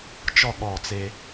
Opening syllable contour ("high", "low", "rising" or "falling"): falling